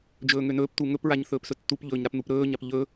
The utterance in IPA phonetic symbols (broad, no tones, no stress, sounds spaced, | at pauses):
d͡ʒ ɵː ŋ ø n ɵː p t u ŋ ɵ p ɹ a ɲ θ ɵː p s ɵ tː u p ʎ ɵː ɲ ɾ a p n̪ u p ɾ ɵː ɲ a p ʎ ɵ